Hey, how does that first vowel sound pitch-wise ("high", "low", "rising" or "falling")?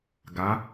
rising